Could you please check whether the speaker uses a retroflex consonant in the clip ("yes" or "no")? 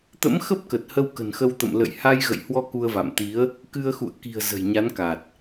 no